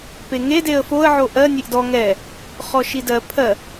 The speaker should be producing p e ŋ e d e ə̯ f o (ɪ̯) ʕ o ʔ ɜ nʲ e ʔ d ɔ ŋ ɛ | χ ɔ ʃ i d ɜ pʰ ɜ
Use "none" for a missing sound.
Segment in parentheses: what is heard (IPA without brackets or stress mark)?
ə̯